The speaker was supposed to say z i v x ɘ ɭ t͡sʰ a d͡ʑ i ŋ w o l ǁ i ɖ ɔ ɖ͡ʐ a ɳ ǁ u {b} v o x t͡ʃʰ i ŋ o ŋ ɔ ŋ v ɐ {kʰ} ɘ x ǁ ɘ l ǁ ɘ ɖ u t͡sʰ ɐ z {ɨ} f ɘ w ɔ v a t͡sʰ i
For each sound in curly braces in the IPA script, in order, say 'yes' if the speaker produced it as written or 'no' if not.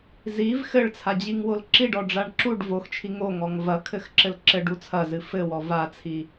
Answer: no, yes, yes

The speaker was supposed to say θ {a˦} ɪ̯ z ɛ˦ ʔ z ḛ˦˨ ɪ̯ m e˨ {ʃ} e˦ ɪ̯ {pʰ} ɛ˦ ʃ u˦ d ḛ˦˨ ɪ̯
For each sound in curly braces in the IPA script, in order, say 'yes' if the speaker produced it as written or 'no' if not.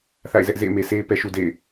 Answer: no, no, no

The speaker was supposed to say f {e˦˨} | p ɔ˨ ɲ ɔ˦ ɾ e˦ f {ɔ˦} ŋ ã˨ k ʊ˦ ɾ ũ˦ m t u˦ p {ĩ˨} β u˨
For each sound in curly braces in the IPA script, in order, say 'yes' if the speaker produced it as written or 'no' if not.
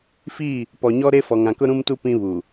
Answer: no, no, no

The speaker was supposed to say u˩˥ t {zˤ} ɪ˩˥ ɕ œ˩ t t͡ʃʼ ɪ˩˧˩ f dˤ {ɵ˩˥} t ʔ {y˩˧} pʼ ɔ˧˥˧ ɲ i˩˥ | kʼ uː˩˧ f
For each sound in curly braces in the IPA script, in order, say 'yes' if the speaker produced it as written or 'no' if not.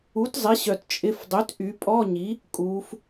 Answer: yes, no, yes

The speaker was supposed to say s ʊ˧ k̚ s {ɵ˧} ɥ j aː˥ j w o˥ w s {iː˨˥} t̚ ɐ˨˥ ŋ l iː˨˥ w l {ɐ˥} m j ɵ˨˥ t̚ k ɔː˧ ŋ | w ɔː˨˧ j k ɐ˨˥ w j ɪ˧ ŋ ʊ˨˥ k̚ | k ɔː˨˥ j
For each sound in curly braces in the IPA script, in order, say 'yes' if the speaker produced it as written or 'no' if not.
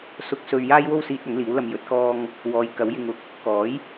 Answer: yes, no, no

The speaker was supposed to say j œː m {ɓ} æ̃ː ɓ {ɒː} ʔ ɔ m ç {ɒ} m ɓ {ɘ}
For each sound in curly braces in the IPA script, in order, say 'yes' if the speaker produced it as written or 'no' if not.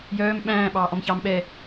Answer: yes, no, no, no

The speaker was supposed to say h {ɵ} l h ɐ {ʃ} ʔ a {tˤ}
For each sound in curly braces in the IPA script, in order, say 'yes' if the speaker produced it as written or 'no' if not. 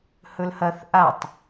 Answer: yes, no, yes

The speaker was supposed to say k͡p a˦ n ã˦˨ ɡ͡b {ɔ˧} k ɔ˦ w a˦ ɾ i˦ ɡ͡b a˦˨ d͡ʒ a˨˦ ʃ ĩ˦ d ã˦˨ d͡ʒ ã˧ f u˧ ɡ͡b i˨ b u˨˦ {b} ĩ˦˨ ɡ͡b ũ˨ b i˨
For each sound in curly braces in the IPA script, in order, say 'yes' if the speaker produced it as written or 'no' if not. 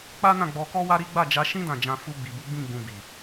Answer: yes, no

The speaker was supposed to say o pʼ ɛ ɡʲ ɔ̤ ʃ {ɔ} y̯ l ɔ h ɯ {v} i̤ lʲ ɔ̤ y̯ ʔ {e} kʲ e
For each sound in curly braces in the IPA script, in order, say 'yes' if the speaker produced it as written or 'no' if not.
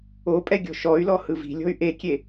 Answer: yes, yes, yes

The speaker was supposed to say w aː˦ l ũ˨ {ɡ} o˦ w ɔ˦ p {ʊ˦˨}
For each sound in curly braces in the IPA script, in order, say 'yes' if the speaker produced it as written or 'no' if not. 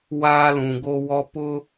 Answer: yes, no

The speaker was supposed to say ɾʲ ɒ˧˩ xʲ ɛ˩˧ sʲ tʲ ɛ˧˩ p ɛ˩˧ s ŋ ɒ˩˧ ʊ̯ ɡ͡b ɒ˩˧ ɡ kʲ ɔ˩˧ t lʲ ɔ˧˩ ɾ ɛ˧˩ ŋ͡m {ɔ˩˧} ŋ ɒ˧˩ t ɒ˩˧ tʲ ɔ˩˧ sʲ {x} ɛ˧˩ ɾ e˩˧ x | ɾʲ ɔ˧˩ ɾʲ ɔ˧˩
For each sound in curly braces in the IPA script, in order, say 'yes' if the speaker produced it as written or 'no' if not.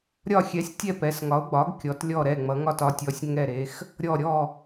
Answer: no, no

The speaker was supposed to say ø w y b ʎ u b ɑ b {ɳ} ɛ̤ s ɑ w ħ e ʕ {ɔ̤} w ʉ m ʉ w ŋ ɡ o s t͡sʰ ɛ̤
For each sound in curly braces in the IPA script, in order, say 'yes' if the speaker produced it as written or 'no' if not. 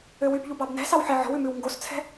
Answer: no, yes

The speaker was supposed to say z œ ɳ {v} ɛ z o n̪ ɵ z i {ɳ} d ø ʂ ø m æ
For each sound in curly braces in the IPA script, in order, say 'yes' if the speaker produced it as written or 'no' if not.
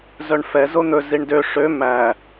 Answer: no, yes

